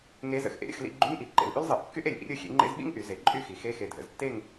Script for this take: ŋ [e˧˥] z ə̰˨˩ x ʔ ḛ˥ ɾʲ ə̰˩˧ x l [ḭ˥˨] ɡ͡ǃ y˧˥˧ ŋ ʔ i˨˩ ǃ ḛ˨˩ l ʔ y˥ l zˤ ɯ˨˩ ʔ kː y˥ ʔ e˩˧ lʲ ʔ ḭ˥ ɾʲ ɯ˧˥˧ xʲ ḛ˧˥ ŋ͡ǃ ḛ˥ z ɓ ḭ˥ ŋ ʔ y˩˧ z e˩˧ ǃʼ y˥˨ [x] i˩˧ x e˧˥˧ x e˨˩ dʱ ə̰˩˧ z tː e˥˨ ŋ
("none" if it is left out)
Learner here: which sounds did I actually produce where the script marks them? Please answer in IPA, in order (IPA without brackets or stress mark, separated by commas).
e˧˥, ḭ˥˨, x